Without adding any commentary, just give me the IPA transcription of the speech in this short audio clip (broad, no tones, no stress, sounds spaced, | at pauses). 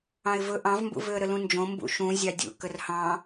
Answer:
ɑ̃ ɪ̯ v ɵ ʔ ɑ̃ v m b ṵ v ø ə̯ ɾ ə l ũ n d͡ʒ õ m b ṵ ʃ ũ zʲ ɑ dʲ ṵ k ə r h ɑ̃